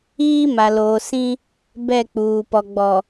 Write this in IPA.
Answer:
iː˦ m a˨ l oː˨ s ĩ˦ | b ɛ˦˨ k͡p uː˨ p ɔ˨ ɡ͡b ɔ˨

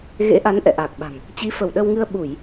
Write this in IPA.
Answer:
ɣ ḛ˧˥ ʔ a˨˦ n ʔ ɛ̰˧˨ ʔ aː˨˩ k̚ ɓ a̤˨˩ ŋ | t͡ɕ i˨˦ f ə˧˩ w ɗ ə˧ w ŋ ɨ˧ ə̯ ɓ u˧˩˨ j

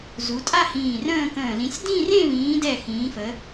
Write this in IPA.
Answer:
z u˨˦ tʼ a˥˧ h ĩː˧˩ r ə̃ː˥˧ k ə̃ː˧˩ l ĩ˨˦ sʲ d ĩ˥˧ r ẽ˥˧ β ĩː˨˦ d ɛ˧˩ x ĩː˨˦ f ə˨˦

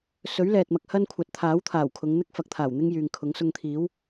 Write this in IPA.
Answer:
s ɵ˨˥ ɥ l ɛː˨ t̚ m ɐ˧ k̚ h ɐ˥ n kʷʰ ɐ˨˥ t̚ t̪ʰ aː˨˥ w t̪ʰ aː˨˩ w kʰ ʊ˨˧ ŋ n̪ ɪ˥ k̚ f ɐ˨˥ k̚ t̪ʰ aː˨˩ w n̪ ɪ˥ ŋ j yː˨ ŋ kʰ ʊ˨˥ ŋ s ʊ˧ ŋ t̪ʰ iː˨˥ w

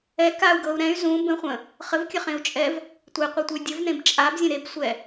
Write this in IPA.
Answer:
ɛ k a u̯ ɡ ɤ u̯ ɾ ɛ̃ y̯ z ũ b ə̃ χʷ ə̃ | χ ə v kʲ ə χ ẽ u̯ t͡ʃʼ ɛ v | tʷ e qʷ ɛ tʷ ə y̯ dʲ ə v n ẽ b t͡ʃʼ a b zʲ ə̃ ɾ e b sʷ ɛ

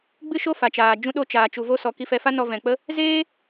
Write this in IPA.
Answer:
ɡ͡b ɨ˦ ʃ o˦ f a˨ t͡ʃ aː˨ d͡ʒ ũ˧ ɗ o˧ t͡ʃ aː˨ t͡ʃ u˨ v o˧ s ɔ˨ k i˧ f ɛ˧ f a˦ n ɔ˧ v ɛ̃˨ k͡p ə˦ | z eː˦

